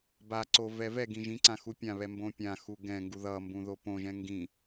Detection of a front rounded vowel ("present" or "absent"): absent